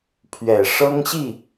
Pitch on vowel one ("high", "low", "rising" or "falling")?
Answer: low